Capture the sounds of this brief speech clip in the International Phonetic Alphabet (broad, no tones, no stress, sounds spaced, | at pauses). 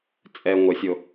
t͡sʼ ɛ ŋʷ ə sʲ o